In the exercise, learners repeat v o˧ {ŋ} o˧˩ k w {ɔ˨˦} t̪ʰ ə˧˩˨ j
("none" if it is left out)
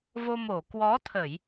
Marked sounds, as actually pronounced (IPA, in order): m, ɔ˨˦

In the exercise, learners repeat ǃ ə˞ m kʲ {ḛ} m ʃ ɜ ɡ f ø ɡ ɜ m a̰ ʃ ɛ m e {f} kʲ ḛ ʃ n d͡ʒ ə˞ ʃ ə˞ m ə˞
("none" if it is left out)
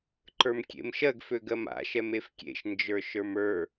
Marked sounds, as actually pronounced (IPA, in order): ḛ, f

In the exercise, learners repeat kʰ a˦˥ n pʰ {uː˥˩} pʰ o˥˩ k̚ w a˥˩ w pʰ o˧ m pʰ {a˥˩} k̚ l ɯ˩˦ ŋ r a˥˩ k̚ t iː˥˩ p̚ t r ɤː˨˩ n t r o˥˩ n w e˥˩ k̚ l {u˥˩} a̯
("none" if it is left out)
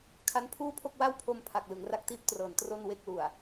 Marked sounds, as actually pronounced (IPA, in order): uː˥˩, a˨˩, u˨˩

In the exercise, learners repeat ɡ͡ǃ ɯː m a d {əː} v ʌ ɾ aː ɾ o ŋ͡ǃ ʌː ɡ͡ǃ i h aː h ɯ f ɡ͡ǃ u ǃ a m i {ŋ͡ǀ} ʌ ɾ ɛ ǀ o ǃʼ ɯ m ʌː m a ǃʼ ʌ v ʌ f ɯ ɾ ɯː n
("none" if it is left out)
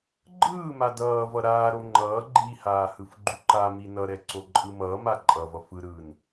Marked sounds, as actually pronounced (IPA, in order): ʌː, n

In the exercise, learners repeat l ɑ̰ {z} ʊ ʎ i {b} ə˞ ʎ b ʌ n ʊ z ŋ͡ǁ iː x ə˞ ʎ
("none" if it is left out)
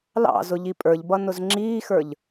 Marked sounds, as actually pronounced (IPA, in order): z, pʼ

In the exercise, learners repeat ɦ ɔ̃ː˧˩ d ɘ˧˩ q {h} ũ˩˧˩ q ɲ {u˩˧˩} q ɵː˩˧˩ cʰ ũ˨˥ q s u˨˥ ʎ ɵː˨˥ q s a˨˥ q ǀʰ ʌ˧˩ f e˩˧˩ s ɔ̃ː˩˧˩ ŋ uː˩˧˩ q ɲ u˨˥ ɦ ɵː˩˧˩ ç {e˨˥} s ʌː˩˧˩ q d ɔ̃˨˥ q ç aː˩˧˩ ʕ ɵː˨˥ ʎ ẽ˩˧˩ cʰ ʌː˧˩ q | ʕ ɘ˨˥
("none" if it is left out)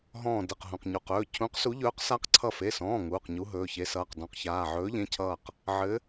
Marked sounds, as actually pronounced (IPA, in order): ɦ, u˩˧˩, e˨˥

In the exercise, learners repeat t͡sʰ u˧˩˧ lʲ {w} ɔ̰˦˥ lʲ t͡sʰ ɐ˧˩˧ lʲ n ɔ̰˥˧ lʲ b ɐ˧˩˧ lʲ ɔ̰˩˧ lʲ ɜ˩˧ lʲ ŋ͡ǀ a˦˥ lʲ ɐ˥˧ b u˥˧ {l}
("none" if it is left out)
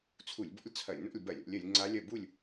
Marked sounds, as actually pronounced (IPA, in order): b, lʲ

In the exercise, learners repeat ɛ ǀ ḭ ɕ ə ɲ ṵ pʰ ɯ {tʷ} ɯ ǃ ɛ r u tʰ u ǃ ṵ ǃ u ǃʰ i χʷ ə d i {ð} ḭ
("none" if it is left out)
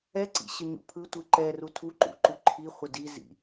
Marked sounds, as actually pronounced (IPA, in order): tʷ, z

